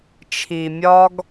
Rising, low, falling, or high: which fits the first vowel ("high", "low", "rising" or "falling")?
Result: low